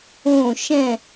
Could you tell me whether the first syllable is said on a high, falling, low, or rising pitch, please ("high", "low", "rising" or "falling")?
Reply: falling